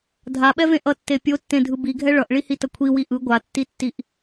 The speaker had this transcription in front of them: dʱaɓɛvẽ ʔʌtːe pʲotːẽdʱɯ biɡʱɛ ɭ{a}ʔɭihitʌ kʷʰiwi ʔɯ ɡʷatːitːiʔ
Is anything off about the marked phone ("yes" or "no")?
yes